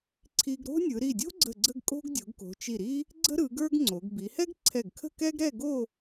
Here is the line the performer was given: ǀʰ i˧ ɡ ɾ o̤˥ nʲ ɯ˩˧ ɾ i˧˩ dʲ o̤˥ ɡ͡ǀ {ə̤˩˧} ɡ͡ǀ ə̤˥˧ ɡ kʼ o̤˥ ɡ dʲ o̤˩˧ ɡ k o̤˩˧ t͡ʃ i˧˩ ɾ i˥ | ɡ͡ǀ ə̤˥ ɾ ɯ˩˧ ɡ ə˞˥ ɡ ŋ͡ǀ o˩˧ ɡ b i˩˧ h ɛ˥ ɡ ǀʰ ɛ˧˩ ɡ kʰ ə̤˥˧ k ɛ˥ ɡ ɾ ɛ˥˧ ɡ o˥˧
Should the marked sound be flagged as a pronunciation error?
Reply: yes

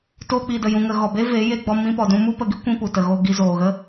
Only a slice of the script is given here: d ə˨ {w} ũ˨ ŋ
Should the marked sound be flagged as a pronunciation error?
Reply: yes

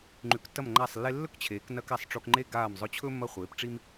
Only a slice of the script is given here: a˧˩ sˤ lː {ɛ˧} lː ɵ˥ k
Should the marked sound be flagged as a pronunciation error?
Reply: yes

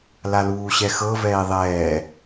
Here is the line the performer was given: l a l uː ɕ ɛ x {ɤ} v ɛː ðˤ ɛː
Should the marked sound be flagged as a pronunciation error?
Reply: no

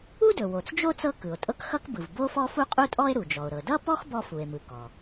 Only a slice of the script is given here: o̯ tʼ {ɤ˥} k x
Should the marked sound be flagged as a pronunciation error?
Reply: no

